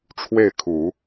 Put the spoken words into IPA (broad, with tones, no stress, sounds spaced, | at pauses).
ʈ͡ʂʰ w e˥˩ ɪ̯ kʰ u˨˩˦